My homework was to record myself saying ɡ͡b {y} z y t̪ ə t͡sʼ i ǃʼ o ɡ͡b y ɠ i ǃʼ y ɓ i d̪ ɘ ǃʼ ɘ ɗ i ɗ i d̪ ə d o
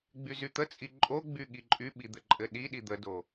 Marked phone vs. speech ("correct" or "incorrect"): correct